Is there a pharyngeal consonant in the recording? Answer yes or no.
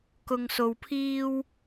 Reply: no